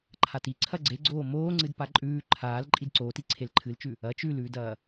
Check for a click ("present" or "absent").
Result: present